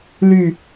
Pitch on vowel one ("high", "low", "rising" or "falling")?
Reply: low